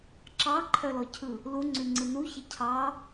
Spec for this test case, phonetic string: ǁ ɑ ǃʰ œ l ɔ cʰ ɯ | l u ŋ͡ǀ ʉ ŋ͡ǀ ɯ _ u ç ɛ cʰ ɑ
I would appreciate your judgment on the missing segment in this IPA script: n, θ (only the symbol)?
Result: n